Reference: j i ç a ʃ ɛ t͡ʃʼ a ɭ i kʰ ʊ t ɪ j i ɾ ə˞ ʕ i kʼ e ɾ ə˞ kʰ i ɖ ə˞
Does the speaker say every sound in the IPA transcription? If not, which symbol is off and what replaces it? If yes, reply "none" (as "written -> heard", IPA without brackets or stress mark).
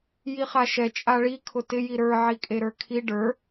ç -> χ